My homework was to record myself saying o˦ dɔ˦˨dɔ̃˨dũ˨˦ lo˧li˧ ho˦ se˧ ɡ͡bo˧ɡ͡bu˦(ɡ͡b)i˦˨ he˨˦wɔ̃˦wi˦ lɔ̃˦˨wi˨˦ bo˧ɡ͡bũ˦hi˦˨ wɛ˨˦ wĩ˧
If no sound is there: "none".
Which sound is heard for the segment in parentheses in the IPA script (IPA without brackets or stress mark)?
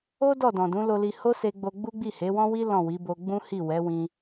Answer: ɡ͡b